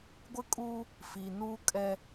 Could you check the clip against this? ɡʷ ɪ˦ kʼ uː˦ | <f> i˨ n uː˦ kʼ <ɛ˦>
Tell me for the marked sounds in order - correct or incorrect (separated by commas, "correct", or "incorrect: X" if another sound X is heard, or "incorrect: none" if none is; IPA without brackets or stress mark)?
correct, correct